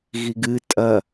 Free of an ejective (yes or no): no